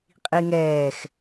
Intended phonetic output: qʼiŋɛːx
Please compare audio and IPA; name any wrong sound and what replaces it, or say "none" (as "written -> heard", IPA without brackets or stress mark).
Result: none